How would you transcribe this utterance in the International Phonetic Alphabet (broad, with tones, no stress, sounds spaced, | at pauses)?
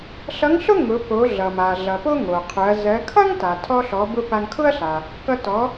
ɬ ʌ˧˥ ŋ ɬ ʊ˥ ŋ ʊ˩˧ p o˩˧ ɮ ʌ˩ m a˩ ɮ ʌ˩ p o˥ ŋ o˩ qʰ ʊ˩˧ ɐ̯ z ɜ˩˧ kʰ ʌ˥ ŋ t a˩ tʰ ɔ˧ ɬ ɔ˩˧ b ʊ˧ p a˧ ŋ kʰ ʊ˥ ɐ̯ ɬ a˩ | k ʌ˧ t ɔ˩˧